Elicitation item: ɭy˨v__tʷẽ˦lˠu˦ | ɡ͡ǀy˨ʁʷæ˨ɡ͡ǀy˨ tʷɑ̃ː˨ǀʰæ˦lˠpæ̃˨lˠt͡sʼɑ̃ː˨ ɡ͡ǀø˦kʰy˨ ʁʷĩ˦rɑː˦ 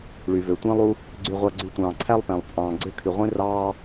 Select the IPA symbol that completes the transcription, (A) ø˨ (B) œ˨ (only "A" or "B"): A